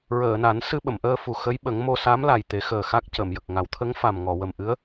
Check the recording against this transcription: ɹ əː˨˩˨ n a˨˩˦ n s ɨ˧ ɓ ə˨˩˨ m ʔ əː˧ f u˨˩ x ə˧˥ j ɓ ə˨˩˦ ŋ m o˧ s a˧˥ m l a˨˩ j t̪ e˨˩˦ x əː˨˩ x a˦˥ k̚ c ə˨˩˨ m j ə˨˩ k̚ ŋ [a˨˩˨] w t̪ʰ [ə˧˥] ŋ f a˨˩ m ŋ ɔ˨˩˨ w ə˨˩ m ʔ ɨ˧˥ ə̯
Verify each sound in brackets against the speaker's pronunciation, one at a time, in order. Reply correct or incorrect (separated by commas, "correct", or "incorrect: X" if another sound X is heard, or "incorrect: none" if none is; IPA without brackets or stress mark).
incorrect: a˨˩˦, correct